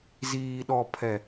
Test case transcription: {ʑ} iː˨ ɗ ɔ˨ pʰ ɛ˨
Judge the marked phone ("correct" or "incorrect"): incorrect